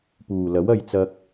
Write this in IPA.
p uː˨˩ l ɐ˨˥ w ɐ˨ j t͡s ɐ˧ k̚

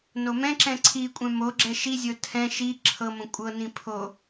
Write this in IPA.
n o m ɛ̃ ǁ ɛ̃ ǀʰ i kʷʼ ɛ̃ m o ɡ͡ǁ ɛ ʃ i zʲ ɤ tʰ ɛ̃ ʃ i ǁʰ ɤ m õ kʷʼ ɤ n ĩ pʰ o

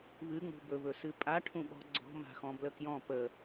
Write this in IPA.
β ɨ ŋ͡m ṳ b ɵ β ɵ s ɨ pʼ a ʈʰ ũ ɓ ɔ̤ ɡ͡ǀ ɔ̤ m a̤ x ɔ̃ b l ə k j ɔ̃ p ə

